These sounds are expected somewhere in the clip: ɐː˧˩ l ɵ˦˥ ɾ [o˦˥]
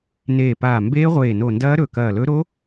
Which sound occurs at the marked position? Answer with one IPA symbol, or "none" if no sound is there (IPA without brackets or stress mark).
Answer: o˦˥